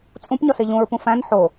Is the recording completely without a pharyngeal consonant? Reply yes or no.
no